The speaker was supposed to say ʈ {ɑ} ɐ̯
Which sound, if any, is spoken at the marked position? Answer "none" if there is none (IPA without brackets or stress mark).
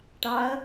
ɑ